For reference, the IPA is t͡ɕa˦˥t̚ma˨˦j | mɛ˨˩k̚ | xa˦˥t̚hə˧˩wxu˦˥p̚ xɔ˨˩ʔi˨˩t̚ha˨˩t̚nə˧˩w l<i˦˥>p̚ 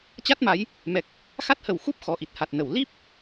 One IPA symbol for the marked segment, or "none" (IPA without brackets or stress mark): i˦˥